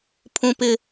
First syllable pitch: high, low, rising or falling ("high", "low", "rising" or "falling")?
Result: low